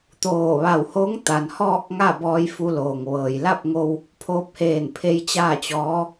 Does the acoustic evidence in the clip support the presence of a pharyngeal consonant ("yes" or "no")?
no